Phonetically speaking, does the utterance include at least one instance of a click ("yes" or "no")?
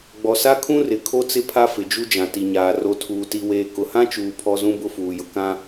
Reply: no